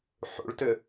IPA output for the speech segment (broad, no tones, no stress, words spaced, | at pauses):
ħṵɭtʏ